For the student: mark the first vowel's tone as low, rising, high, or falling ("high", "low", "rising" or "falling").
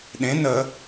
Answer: rising